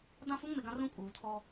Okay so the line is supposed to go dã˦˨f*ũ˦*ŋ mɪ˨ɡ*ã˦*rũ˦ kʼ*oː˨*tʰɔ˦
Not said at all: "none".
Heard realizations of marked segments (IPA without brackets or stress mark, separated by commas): u˦, ã˦, uː˨